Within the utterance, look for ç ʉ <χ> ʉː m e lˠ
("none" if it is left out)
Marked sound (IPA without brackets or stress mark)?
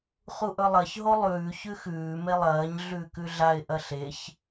x